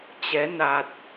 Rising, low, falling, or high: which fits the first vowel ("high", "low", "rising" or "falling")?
rising